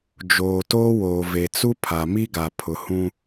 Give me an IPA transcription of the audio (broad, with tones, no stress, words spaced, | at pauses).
d͡ʒoː˨toː˦woː˨ ve˨t͡su˦ pʰa˨mi˦ɡa˨ pʰʊ˨hũ˦